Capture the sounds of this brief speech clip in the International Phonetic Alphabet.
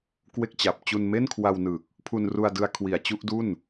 kwe˥˩k̚t͡ɕa˨˩p̚ t͡ɕu˧nme˥˩nkʰwa˧wnɯː˨˩k̚ | pʰu˧nru˧a̯dɯ˧a̯ kʰwi˨˩a̯t͡ɕu˥˩ʔdu˥˩n

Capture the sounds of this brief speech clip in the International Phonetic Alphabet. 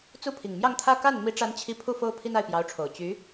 t͡su˥˩pʰi˨˩ŋ mjɑ˥˧ŋt̪ʰä˥˧ ka˥˩n mi˥ʈ͡ʂa˥nt͡ɕʰi˥˧ pʰu˥˩fo˥ʊ̯ pʰi˥na˥˩ɪ̯pjɑ˧˥ʊ̯ʈ͡ʂʰo˨˩ʊ̯ t͡ɕy˧˥

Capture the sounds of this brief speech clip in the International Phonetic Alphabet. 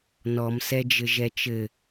nɔmsɛd͡ʒɘ ʒɛt͡ʃɘ

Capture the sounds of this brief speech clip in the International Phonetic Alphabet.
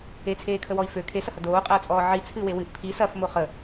et͡sʰeːkʰəwɔi̯ fø kʰesɐhɐ doːqʼɐːt͡sʼɔː ʕi t͡sʰɨwe wɨʔ pʰi sɐfmo χə

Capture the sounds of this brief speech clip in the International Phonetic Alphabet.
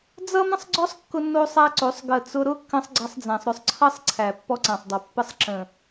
d͡zʌ˦mə̃˦sˤɡ͡ǀɔ˦sˤ kːʊ˦nːo˦sˤæ˦ǀo˨˦sˤ ɡə˨t͡sʊ˧ ɾʊ˦kːə̃˧sˤ ɡ͡ǀʌ˦sˤd͡zæ̃˧sˤɾʏ˦sˤ ǀʰʌ˦sˤǀʰæ˨ pːɔ˦ǀæ̃˨sˤdˤo˨ pːə˧sˤ ǁə̃˨

